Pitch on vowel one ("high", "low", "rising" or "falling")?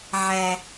high